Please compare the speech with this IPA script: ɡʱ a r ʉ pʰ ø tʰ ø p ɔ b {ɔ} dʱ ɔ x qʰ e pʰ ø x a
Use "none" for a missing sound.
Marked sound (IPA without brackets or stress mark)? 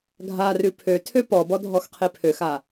ɔ